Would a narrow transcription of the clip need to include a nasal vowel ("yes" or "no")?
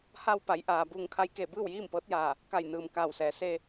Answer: no